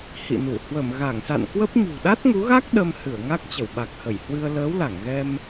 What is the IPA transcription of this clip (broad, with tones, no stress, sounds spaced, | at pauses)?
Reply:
h ḭ˧˨ n u˧˩ h w ə˧˩ m ɣ a˧˩ ŋ s a̰˧˨ n k w ə˦˥ p̚ ɲ ṳ˨˩ ɗ a˦˥ t̚ ŋ u˨˦ ɣ a˦˥ k̚ ɗ ə˧ m h ɨ˧˩ ə̯ ŋ a˦˥ k̚ t͡ɕ ə˧˩ w ɓ a˨˩ k̚ h ə˧˩ j h w ɨ˧ ə̯ l əː˨˦ w l a˧˩ ŋ ɣ ɛ˧ m